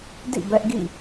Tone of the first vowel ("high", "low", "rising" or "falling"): falling